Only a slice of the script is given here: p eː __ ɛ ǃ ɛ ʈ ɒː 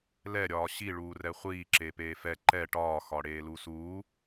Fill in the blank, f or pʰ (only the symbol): f